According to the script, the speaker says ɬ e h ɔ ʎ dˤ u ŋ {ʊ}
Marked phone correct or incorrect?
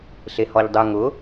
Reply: correct